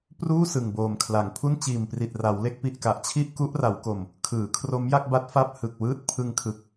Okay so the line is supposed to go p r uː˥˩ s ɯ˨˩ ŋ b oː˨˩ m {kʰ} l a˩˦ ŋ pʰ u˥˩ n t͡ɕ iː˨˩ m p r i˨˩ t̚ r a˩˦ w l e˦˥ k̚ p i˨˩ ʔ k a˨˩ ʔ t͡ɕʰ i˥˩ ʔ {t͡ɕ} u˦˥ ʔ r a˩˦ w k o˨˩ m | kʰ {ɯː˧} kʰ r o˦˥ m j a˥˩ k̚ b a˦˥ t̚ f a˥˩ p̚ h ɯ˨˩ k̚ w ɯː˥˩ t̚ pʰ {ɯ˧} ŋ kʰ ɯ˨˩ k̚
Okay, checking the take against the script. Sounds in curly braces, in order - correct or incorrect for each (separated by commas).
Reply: correct, incorrect, incorrect, correct